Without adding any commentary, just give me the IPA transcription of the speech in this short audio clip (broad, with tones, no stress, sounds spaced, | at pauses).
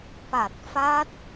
p a˨˩ t̚ f a˦˥ t̚